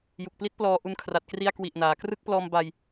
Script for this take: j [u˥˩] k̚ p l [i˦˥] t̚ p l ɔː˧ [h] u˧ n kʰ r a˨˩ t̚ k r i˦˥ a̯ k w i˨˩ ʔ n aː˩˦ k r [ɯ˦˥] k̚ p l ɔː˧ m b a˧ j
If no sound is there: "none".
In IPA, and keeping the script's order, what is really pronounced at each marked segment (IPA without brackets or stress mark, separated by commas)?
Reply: u˨˩, i˦˥, ʔ, ɯ˦˥